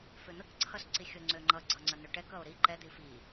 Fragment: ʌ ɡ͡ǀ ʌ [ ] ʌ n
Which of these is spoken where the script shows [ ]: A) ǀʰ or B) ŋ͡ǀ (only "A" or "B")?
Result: B